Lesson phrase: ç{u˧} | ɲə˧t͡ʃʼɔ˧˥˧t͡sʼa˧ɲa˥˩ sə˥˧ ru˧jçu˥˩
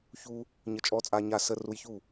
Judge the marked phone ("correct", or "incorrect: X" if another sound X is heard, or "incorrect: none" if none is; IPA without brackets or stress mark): correct